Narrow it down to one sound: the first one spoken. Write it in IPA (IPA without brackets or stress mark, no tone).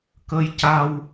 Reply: k